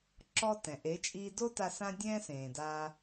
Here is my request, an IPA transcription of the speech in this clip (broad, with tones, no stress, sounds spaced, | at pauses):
ǁ ɔ˦ t ɛ̃˨ ʔ e˨˦ t͡ʃʼ iː˧ d o˦ t a˧ s ã˦ dʲ ɛ̃˦ s ẽː˨ d a˧